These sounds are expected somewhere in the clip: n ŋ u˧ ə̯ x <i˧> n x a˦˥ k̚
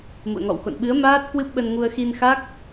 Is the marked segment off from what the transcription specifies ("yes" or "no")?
no